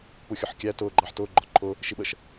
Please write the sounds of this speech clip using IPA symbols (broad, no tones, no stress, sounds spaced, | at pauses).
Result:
p u xʲ ʊ ħ kʲ æ t ʊː ɡ͡ǃ ɑ ħ t ʊː ɡ͡ǃ ɒ ǃʰ ʊ | ʃ i ɓ ə ʃ